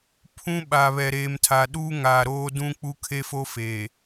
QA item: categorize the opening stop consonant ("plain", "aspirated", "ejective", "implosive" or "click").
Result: aspirated